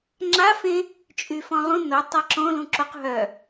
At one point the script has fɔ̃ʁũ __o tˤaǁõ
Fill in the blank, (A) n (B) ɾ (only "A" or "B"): A